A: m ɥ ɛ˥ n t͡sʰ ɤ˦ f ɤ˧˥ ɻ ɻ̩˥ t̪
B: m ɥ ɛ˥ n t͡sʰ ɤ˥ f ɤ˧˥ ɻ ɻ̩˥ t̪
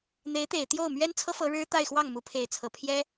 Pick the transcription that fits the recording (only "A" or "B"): B